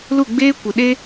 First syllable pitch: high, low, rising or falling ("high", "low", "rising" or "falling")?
falling